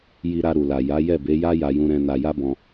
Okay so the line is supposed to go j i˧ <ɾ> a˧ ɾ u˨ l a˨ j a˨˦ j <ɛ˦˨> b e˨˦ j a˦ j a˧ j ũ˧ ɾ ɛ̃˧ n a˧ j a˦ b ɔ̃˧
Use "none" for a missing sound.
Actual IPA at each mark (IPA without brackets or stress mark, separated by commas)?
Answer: ɾ, ɛ˦˨